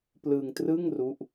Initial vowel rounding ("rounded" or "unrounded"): unrounded